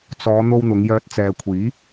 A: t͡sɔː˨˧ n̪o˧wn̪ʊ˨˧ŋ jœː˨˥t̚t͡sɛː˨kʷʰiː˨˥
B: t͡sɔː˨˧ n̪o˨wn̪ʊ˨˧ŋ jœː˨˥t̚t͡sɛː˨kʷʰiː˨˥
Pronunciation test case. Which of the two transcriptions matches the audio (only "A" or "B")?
A